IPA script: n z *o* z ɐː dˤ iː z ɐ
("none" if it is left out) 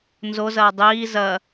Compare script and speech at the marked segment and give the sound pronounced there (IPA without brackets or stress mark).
o